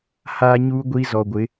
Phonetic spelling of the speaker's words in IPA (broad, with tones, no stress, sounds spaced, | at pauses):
h aː˦ ɲ uː˦ ɡʷ i˦ z ɔ˨ ɡʷ ɪ˨˦